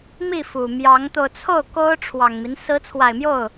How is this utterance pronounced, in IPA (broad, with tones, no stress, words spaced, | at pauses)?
mi˥˩fu˨˩mjɑ˧˥ŋt̪o˧ʊ̯ t͡sʰo˥˩ʊ̯ ko˥ʊ̯ʈ͡ʂʰwɑ˨˩ŋmi˦n sɹ̩˧˥t͡sʰwa˨˩ɪ̯mjo˥˩ʊ̯